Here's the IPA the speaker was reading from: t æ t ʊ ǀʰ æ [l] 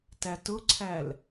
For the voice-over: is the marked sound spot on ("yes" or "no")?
yes